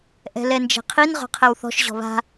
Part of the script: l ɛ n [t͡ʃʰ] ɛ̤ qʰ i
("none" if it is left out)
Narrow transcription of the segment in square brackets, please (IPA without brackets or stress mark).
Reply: d͡ʒ